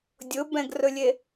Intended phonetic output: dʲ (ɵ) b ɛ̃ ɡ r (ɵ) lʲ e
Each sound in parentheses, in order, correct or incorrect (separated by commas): incorrect, correct